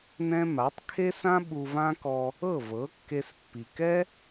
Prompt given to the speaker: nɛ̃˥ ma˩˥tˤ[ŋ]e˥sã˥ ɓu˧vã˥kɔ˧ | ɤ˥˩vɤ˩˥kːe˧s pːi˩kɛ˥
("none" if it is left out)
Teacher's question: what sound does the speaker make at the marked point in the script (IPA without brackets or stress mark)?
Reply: kʰ